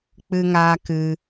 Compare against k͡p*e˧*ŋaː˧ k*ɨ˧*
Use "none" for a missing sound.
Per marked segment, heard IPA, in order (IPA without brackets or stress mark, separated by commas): ɨ˧, ɨ˧